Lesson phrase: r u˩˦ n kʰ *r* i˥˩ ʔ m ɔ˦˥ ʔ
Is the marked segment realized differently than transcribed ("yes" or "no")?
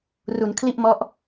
yes